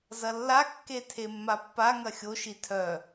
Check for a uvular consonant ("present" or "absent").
absent